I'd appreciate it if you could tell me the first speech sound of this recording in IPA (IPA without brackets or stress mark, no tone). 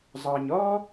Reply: zˤ